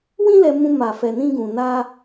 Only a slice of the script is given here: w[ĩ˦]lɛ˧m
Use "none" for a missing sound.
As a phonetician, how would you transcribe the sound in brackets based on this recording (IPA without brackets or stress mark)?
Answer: ĩ˦